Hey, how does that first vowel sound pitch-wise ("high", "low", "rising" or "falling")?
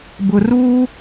high